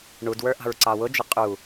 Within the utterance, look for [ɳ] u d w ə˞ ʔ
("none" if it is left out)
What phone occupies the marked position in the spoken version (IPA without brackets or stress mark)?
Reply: ɳ